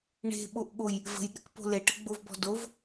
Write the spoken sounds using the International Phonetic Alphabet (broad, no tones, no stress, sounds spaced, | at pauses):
ɳ e̤ ɓ o ʔ ɠ o j | v ə̤ j ɗ ə̤ k p o̤ l e ʈ ə ɡ͡b o v b ɔ̤ d o v